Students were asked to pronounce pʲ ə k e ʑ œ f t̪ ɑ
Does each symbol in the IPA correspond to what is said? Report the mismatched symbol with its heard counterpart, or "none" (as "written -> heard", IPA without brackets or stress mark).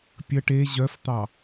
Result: k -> ʈ